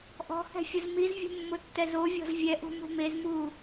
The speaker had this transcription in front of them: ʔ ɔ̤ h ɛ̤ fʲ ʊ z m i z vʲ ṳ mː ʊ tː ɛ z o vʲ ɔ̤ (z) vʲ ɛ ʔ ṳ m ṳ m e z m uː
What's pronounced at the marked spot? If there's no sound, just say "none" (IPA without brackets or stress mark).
z